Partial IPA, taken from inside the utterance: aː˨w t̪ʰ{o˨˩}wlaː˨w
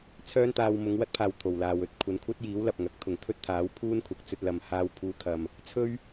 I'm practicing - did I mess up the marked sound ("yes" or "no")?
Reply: no